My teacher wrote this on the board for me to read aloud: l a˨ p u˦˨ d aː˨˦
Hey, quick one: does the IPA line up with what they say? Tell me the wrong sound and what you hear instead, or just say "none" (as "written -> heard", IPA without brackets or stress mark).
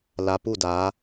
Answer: none